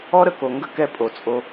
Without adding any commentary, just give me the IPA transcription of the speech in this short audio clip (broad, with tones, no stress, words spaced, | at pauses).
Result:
ɔ˦ɾə˨ ko˨ ŋɡə˥kɛ˦ pʼo˩t͡sʼo˨